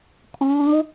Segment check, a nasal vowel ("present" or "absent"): present